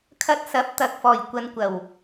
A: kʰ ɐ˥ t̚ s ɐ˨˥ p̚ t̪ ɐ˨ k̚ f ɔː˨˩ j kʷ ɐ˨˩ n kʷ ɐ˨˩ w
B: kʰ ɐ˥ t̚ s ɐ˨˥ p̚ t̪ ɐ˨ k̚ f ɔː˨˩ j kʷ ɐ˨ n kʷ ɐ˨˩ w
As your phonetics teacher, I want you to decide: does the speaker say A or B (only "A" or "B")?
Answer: B